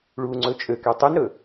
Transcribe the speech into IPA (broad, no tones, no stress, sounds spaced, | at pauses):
ɭ u ŋ͡ǀ ɵ t͡ʃʼ ø k ɛ tˤ y n ɾ ɵ